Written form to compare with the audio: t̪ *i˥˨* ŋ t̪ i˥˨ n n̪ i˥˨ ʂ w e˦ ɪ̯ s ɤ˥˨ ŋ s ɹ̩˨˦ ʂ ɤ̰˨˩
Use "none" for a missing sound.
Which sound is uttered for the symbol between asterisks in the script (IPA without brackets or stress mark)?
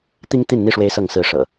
i˦